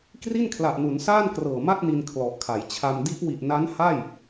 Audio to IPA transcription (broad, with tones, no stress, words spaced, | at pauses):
kri˥˩nkʰla˨˩ʔnu˩˦nsaː˥˩n krɤː˨˩ma˥˩t̚ni˧n kʰlɔ˨˩ʔkʰa˩˦jt͡ɕʰa˧m di˦˥ʔwi˨˩ʔ na˦˥nha˥˩j